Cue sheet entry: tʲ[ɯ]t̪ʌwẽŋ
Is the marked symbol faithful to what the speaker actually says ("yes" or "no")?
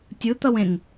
yes